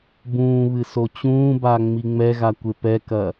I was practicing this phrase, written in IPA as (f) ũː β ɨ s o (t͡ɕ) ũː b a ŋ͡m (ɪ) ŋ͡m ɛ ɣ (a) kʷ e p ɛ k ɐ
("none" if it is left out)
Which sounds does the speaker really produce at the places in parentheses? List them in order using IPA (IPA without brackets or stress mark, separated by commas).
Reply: b, t͡ɕ, i, a